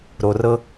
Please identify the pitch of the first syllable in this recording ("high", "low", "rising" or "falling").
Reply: low